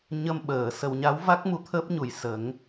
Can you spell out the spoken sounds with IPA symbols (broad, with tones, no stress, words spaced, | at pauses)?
ɲə˧m ɓəː˨˩˨ sə˨˩wɲa˧˥wva˦˥k̚ mu˧˥t̪ʰəː˦˥p̚ɲu˨˩j sə˨˩˦ŋ